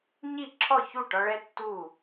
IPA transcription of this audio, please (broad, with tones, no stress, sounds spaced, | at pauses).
ɲ i˥˩ ǁʰ ɔ˥˩ ç u˥˩ ʈ ɒ˥ ɭ ɛ˥ tː u˥˩